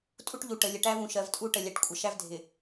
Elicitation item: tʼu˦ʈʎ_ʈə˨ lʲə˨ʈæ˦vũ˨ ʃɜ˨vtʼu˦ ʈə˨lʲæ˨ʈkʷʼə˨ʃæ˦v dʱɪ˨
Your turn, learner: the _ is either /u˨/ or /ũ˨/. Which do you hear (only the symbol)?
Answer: u˨